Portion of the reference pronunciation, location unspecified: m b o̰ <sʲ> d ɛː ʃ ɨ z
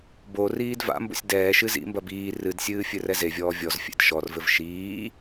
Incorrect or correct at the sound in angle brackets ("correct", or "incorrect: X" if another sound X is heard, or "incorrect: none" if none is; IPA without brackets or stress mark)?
correct